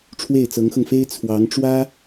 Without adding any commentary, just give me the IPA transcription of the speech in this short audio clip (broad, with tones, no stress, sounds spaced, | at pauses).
ʈ͡ʂʰ w e˥˩ ɪ̯ t͡s ɤ˧˥ ŋ x ɤ˧ ŋ f e˥ ɪ̯ t͡sʰ w ɑ˧˥ ŋ ʈ͡ʂ w ä˥